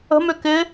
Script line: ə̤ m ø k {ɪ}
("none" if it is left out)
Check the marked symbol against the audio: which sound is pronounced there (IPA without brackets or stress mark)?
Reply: ɪ